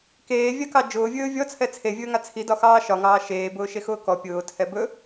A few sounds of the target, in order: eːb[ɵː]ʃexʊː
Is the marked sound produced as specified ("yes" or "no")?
no